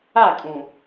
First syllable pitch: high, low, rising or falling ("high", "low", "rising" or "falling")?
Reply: falling